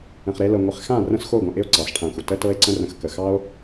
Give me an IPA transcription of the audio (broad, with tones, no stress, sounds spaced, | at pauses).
ə̃˨ χ ɾ e˧ l ɤ˨ ŋʷ ɪ˨ χ x ã˦˨ r ə̃˦ s x o˦˨ ɡʷ ə̃˨ ʔ ɪ˦ o̯ ǀ ɑ˨˦ s ʈʰ ã˧ xʷ ə˨ t ə˧ t ɤ˧ e̯ ǀ ə̃˧ r ə̃˨ x k ə˨ x ɑ˦ o̯